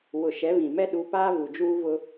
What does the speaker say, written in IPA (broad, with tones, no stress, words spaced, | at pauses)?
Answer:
wʊ˨ ʃɛ˨˦βĩ˨mɛ˦ ɗu˨˦paː˦ vu˨d͡ʒuː˦vʊ˦